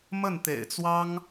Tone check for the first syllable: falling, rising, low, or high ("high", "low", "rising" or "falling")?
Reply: falling